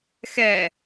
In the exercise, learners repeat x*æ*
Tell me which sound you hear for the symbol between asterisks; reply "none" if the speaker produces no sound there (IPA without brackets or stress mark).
ɛ